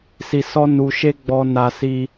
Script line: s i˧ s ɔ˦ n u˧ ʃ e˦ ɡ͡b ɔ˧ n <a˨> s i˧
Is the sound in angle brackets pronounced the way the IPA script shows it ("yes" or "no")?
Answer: no